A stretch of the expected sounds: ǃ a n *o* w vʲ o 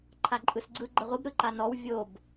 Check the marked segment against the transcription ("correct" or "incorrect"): incorrect